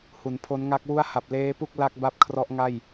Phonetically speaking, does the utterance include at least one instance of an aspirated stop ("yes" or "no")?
yes